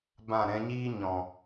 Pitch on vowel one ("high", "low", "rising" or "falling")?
falling